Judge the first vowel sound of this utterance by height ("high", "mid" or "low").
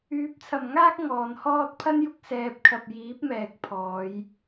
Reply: high